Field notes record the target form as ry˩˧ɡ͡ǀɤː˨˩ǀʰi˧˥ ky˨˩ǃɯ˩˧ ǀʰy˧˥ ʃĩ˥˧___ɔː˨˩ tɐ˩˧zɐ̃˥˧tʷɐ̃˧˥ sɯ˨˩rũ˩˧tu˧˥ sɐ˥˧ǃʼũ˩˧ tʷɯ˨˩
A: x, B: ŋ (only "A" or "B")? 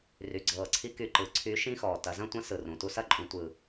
A